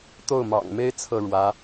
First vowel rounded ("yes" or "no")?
yes